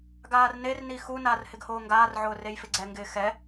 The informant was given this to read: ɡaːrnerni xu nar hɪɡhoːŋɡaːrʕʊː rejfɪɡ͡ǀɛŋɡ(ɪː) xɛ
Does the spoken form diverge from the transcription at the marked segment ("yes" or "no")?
no